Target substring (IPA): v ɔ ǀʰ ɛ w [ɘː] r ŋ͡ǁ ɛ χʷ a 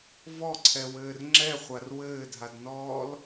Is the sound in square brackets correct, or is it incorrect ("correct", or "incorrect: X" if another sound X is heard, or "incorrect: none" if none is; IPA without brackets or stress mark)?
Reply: correct